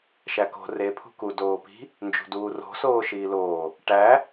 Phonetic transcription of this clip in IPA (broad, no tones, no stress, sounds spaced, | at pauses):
ʃ æ k o̤ r e pʰ ṳ k u d oː p i̤ | n d͡ʒ ṳ d uː r o̤ s oː ʃ iː l oː | ʈ æ